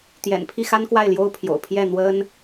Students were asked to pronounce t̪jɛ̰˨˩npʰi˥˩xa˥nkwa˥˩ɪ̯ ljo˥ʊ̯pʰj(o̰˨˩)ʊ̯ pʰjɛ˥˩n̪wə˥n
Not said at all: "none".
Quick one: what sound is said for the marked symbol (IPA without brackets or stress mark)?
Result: o̰˨˩